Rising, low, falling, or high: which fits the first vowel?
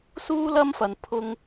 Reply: high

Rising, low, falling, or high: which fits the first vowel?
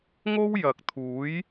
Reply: high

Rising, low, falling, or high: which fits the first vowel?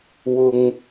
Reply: low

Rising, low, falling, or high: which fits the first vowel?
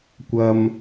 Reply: high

